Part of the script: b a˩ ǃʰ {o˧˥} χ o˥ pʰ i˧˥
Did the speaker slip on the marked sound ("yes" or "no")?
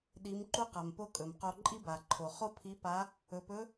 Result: yes